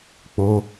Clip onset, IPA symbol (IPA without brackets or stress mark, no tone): k͡p